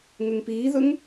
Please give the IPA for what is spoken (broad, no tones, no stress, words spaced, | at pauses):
ŋɵŋpiːðɵŋ